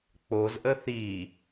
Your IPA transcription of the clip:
k͡p o z ʔ ə θ i

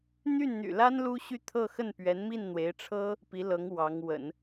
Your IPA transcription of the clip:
n̪ y˥˩ n n̪ y̰˨˩ l a˥ n l u˥ ɕ y˥˧ t̪ʰ ɤ˥˧ x ə˥˩ n p ɥ ɛ˧˥ n m i˥˩ n n̪ w e˧˥ ɪ̯ ʈ͡ʂʰ ɤ˥ | p i˧˥ l ɤ˧˥ ŋ w ɑ˧˥ ŋ w ə̰˨˩˦ n

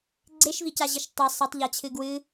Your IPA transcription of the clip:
ɡ͡ǀ e ʃ v i c a ʑ i ʃ tˤ e sˤ ɪ tˤ ʎ a t͡ɕʰ ɨ ɡ w ɨ

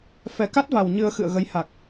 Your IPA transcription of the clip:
f ɛ˨˩ k a˦˥ t̚ v a˨˩ w ɲ ɨ˧ ə̯ x ɨ̰˧˨ ə̯ ɣ ə˨˦ j h a˨˩ k̚

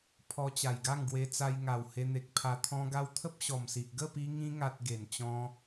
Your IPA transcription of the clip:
pʰ ɔ˧ t͡ɕ a˨˩ j ɡ a˥˧ ŋ ɡ w e˧ t͡s a˧ j ŋ a˨˩ w h e˧ n̪ e˨ k̚ pʰ a˧ t̪ʰ ɔ̃˧ ɡ a˧ w t̪ʰ ə˦ p̚ ɕ ɔ˨˩ m s i˨ ʔ ɡ ə˥˧ p i˧ ŋ ĩ˧ ŋ a˨ t̚ ɡ e˨˩ n t͡ɕ ɔ̃˧

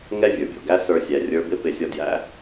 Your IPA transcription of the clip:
ŋ ɛ˥ vʲ ə˞˩ bʲ ɔ̰˩ ɡ æ˥ s ə˞˧ sʲ æ˩˧ rʲ ə˞˧˥ b ɪ˥ p ɪ˧ sʲ ɔ˧ d j æ̰˧˥

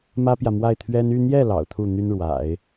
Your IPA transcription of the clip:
m ä˥ p j ä˨ m w a˥˩ ɪ̯ t̪ʰ ɥ ɛ˥ n y˥˧ n̪ j ɛ˥˩ l ɑ̰˨˩ ʊ̯ t̪ʰ u˥˩ n̪ y˥ n ɻ w a̰˨˩˦ ɪ̯

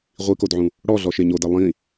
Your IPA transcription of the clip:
ʁʷ i k o d ʕ ũ | ɽ ɔ ɮ ɔ ʃ e ɲ o d ɛ lˠ ĩ

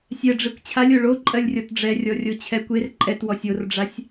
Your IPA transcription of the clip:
sʲ ɛ ɖ͡ʐ e kʷ t͡ɕʰ a lʲ o ɭ o ǃʼ ɜ lʲ rʲ ɔ t ɖ͡ʐ ɛ rʲ ɔ rʲ o t͡ɕʰ ɛ kʷ e r ǃʼ ɛ t w ɔ sʲ o r ɖ͡ʐ a sʲ

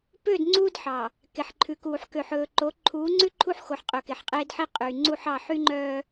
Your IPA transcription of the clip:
p ø˦˨ d ŋ͡ǀ uː˦ d ħ ɑ˨ | k e˨ ħ ǃʰ ʉ˨ k uː˨ ħ k ø˨ ħ ɵː˨ ǃ o˨˦ ǃʰ uː˨˦ ŋ͡ǀ ʉ˦ ǃʰ u˦ ħ x o˨ ħ qʼ ɵ˨ k e˨ ħ qʼ eː˦ d ħ i˦ qʼ yː˨ ŋ͡ǀ u˦ ħ ɑ˦˨ ħ y˦ ŋ͡ǃ œː˦

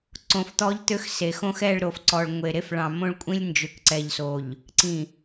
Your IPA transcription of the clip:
ǀ õ˨ f t̪ ɔ˦ ʎ t̪ ø˦ x s e˨ x õ˦ x ɛ˦˨ ɭ ɾ o˨ f ǀ ɔ˨ ɭ ŋʷ e˨ ɾ e˦ f ɭ ɑ̃˨ m õ˦ ɭ kʷʼ ĩ˦ lʲ n d͡ʒ ø˨ k ǀ ɛ˨ ʎ s o˨ ʎ | ǀ ĩ˨

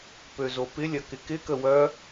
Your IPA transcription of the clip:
p ø z o p ɪ lʲ ɐ k ɪ k ɪ k ə w œ

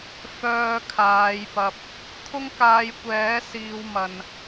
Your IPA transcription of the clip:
f œː˧ kʰ aː˨˧ j p ɐ˧ p̚ | t̪ʰ ʊ˥ ŋ k aː˧ j kʷ ɛː˨˥ s iː˧ w m ɐ˨ n

